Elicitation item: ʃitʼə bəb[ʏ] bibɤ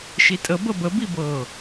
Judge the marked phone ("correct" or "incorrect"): incorrect